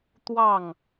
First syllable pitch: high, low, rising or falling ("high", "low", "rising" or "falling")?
falling